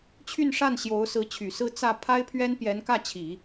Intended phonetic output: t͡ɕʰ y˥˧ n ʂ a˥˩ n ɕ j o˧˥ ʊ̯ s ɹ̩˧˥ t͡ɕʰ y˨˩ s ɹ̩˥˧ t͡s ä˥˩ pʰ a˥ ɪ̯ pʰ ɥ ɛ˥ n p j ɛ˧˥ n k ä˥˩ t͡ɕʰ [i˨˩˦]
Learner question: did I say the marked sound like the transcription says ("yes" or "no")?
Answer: yes